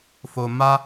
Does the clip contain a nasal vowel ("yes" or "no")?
no